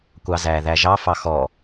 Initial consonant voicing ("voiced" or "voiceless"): voiceless